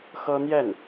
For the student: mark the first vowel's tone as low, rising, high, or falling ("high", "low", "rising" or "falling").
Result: high